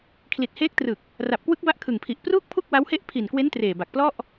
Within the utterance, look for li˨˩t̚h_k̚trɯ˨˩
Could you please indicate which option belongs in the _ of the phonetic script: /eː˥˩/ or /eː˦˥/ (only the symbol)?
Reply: eː˦˥